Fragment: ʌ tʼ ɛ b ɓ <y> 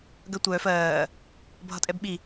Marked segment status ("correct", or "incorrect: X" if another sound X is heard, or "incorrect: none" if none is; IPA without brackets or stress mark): incorrect: i